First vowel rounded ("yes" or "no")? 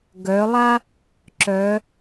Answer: yes